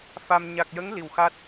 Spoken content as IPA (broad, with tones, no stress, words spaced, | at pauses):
fa˧m ɲa˨˩k̚jə˧˥ŋ li˨˩wxa˦˥t̚